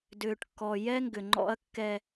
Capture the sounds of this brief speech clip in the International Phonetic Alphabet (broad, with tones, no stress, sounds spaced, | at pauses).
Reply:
d ʏː˨ ʈ kː ɔ˨ j ɛ˦ ŋ ɡ ʏ˨ ŋ͡ǃ ɔ̰˦ ɐ̯ kː ɛ˦